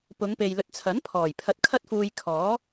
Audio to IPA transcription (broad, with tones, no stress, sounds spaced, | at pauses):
p ʊ˨˧ ŋ p e˨ j l ɵ˨˥ t̚ t͡sʰ ɐ˨˥ n pʰ ɔː˨˩ j pʰ ɐ˧ t̚ kʰ ɐ˥ t̚ f uː˧ j kʰ ɔː˨˥